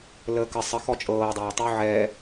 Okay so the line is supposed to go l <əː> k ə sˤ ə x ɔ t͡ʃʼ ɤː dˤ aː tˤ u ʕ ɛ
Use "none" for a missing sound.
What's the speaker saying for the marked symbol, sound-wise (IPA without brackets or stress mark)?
əː